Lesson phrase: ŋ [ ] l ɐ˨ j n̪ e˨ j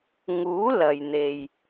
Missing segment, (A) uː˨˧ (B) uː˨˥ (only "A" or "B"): B